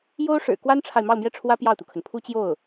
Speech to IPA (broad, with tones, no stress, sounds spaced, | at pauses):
j o˥ ʊ̯ ʂ ɻ̩˨˩ k w a˥ n ʈ͡ʂʰ a˨ ɪ̯ m ɑ˥˧ ʊ̯ m j ɛ˥˩ ʈ͡ʂʰ w ä˥ p j ɑ˥˩ ʊ̯ t̪ u˩ kʰ ə˩ n pʰ u˥ t͡ɕ j o˥˩ ʊ̯